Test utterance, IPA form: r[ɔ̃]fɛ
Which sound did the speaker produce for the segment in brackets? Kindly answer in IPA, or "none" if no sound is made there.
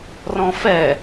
ɔ̃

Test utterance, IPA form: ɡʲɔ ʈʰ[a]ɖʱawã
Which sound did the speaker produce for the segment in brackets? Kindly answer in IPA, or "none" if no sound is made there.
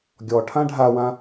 ã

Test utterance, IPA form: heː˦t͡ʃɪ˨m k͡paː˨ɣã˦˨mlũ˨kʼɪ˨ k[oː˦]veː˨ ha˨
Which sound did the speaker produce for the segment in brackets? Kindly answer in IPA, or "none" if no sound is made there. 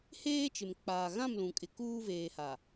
uː˦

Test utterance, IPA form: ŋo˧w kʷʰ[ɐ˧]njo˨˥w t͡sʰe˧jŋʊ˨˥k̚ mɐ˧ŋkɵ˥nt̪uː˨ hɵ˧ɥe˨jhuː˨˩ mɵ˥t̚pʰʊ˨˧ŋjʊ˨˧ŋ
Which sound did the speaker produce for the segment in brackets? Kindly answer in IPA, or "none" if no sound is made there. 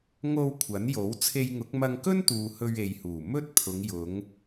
ɐ˨˥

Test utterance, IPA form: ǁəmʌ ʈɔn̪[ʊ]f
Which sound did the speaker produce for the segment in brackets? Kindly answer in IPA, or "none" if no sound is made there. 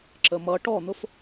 ʊ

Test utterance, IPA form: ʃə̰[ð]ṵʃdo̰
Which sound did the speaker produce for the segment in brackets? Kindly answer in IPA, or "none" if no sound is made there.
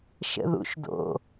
ð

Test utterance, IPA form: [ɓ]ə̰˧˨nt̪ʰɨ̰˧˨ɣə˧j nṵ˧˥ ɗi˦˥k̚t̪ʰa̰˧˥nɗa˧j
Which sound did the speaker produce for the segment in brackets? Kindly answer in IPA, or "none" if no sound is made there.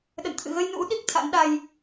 ɗ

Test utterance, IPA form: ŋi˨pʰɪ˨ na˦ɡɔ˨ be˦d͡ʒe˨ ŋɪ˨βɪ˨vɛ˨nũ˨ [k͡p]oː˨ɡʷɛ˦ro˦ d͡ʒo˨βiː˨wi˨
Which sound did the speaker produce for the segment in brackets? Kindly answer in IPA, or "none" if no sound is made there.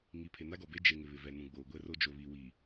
ɡ͡b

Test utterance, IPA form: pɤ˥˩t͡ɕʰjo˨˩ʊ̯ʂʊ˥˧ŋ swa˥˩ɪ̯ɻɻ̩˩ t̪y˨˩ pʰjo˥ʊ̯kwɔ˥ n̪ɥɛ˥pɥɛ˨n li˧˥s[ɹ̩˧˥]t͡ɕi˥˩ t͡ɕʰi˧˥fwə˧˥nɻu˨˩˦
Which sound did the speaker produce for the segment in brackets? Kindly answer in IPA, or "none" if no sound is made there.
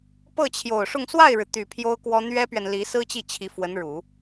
ɹ̩˥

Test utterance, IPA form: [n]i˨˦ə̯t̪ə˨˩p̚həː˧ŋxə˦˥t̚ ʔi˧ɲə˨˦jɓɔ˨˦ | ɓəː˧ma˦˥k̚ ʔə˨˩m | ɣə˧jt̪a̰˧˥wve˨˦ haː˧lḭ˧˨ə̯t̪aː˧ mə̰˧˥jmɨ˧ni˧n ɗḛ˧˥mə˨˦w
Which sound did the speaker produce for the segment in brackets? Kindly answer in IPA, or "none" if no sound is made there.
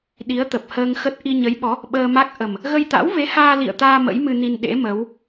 ɗ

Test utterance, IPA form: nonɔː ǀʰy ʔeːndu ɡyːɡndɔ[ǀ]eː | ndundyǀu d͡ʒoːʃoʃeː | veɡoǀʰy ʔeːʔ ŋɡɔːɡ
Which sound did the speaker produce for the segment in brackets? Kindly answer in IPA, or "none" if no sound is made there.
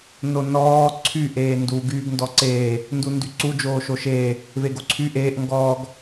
ǀ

